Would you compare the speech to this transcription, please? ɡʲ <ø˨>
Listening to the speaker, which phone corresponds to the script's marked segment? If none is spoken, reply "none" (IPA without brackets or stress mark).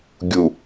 u˨